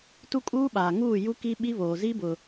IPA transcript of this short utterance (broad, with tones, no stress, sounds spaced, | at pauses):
t u˦ kʼ uː˦ ɓ aː˨ ŋ uː˦˨ j u˦ k i˦ ɓ i˦ β oː˨ z i˦ b ʊ˨